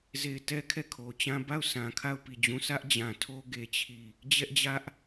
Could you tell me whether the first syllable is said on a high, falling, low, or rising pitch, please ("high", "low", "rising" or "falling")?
falling